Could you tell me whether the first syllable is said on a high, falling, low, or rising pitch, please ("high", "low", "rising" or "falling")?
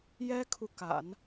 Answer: high